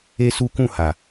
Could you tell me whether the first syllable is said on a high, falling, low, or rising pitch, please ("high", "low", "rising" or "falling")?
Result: high